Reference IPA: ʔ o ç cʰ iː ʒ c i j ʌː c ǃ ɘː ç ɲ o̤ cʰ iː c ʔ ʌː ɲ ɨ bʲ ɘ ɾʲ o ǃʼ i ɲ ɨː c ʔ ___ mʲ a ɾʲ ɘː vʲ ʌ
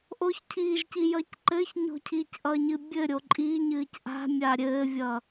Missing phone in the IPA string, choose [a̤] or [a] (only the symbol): a̤